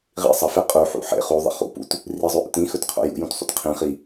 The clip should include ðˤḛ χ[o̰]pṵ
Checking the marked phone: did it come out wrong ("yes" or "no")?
yes